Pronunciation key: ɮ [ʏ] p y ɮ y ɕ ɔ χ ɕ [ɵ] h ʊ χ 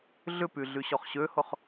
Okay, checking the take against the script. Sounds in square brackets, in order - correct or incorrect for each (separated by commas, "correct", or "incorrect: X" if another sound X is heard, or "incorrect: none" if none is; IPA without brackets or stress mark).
correct, incorrect: ø